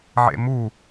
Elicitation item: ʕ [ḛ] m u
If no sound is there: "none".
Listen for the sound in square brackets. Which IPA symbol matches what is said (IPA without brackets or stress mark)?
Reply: ḛ